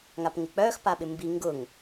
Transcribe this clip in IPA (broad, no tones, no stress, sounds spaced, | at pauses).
ŋ a p ŋ ɪ k͡p œ x p a ɓ ɪ m b i ŋ ɡ ʊ ŋ